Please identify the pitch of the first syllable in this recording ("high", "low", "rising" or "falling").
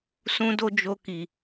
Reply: high